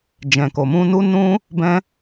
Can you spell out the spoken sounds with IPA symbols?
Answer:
d͡ʒɛ̃˨ko˨mũ˧ nu˦ nũ˦ | bɛ̃˦

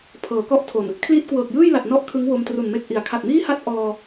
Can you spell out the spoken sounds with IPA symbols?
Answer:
pʰɤː˩˦kɔ˥˩ʔtʰo˨˩n | kʰliː˦˥t̚kwɤː˨˩k̚jɯː˥˩jla˨˩t̚ nɔ˥˩ʔkʰɯ˦˥ŋwo˧m tru˨˩nme˦˥k̚ʔi˩˦a̯ kʰa˨˩t̚miː˥˩ha˥˩t̚ ʔɔː˧

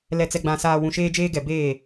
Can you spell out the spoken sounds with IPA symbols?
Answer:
lɛ˨t͡sɛ˨ɡ͡bã˨ saː˨ wũ˨ʃeː˦d͡ʒeː˦ɡɛ˨ beː˦˨

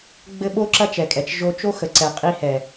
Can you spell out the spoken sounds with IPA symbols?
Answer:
ɡ͡bɘ˦ ɓo˦ǁɐ˦t͡ʃɛ˨kʼɛ˨t͡ʃ ʒo˧t͡ʃo˦xə˨ ǀɛ˨qʼi˧hɛ˨

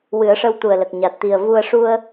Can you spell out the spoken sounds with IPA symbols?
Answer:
wɨ˨˩˦ə̯ʂə˧wt̪u˨˩ə̯lə˨˩k̚ ɲa˨˩t̚t̪i˨˩ə̯vu˧ə̯ ʂu˧ə̯

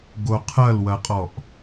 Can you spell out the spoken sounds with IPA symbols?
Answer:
ɡoqʰɐlwɐqʼɔʔ

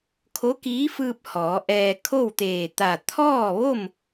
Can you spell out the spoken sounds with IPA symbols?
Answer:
kʰo˧˥kiː˧˥fɯː˧p̚ hɔː˩˧ʔɛː˧ kʰo˥˨wt̪eː˧˩t̪a˧˩ t̪ʰɔː˥˨ʋo˥˨m

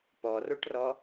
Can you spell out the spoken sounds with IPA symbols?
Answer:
pɔroʈrɔ

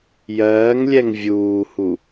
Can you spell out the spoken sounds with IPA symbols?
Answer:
jɜːŋlʲɛŋ vʲuːhu

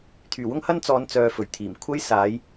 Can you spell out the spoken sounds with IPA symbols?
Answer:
t̪ʰyː˨˩wʊ˥ŋhɐ˥n t͡sɔː˨˧nt͡sœː˨ fɵ˨˩ɥt̪ʰiː˨˩m kʷʰɐ˥jsaː˨˥j

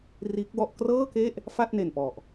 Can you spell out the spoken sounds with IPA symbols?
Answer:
riː˦˥k̚wɔ˥˩ʔ krɤː˥˩ke˥˩ʔ | fa˥˩t̚ne˨˩npɔ˨˩ʔ

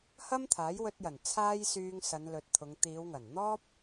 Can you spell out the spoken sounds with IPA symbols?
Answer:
hɐ˥mt̪ʰaː˨˥jwɵ˧t̚jɐ˨˩n t͡sʰaː˥jsyː˧ŋ sɐ˨˧nlɵ˨t̚ t̪ʰʊ˨˧ŋ t̪iː˨˧wŋɐ˨˩nn̪ɔː˥p̚

